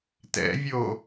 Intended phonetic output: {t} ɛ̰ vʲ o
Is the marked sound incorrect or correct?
correct